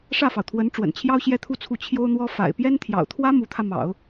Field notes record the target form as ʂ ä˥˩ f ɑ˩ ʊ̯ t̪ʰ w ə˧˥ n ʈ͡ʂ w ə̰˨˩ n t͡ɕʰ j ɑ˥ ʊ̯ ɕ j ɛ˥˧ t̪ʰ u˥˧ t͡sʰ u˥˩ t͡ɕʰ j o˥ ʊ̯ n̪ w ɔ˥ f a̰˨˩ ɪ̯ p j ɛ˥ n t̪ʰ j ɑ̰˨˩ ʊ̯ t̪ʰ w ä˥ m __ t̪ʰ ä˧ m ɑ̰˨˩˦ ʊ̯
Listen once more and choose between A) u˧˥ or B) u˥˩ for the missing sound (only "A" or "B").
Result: A